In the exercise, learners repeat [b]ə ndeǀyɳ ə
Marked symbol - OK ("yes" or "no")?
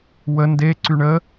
no